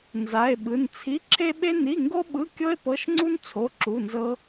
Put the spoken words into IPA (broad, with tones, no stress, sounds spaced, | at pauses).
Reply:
n z a˧˥˧ e̯ ɓ ɯ˧˥˧ n t͡sʰ i˧˥˧ ǁʰ e˥ ɓ e˥ n i˧˥˧ ŋ ɡ o˥ ɓ ɯ˧˥˧ kʲ ɤ˥ e̯ p ɤ˧˥˧ ʃ ŋ͡ǀ u˥ n t͡sʰ o˧˥˧ ǁ u˧˥˧ n z ɤ˥